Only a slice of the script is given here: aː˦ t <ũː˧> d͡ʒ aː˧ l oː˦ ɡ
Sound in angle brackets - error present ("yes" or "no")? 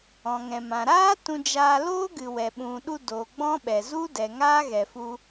yes